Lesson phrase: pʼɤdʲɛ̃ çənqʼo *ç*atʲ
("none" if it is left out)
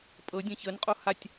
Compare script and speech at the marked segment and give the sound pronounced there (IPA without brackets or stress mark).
h